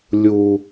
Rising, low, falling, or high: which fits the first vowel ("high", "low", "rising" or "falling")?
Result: high